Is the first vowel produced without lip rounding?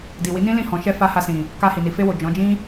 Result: yes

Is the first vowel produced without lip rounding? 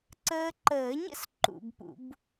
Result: yes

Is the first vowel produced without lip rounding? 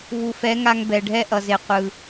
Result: no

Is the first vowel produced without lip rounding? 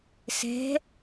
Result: yes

